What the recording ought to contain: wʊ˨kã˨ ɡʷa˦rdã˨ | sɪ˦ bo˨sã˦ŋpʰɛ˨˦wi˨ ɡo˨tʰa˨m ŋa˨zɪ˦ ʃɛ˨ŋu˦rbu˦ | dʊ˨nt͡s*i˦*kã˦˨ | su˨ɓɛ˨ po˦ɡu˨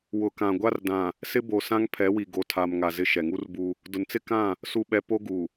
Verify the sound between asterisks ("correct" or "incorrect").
incorrect